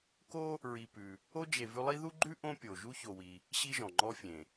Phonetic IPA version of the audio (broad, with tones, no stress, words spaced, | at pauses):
ko˥ | ɹi˨ pʉ˨ | o˦d͡ʒe˨ vʉ˦lˠi˥ ðu˥ɡ͡ǃʉ˥ ʔõ˥pʲo˨ ʒu˦ço˨wi˨ | ɕi˦ʒɔ̃˩ ŋ͡ǃɔ˦fʲẽ˩